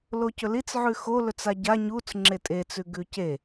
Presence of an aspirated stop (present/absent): absent